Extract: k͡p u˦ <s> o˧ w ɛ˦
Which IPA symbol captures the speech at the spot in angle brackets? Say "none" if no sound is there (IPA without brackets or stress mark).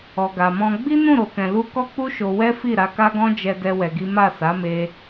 ʃ